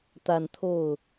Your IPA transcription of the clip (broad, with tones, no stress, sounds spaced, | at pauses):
t̪ a˨˩ n t̪ʰ o˥˩ ʊ̯